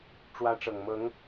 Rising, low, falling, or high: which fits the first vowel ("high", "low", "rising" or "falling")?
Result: high